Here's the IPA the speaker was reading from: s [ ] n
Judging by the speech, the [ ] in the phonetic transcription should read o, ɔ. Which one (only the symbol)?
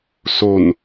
o